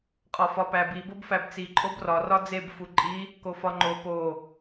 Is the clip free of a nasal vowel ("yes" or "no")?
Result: yes